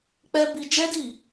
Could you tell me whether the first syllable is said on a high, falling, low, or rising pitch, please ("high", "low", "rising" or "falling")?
high